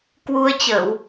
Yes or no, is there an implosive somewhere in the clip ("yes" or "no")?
no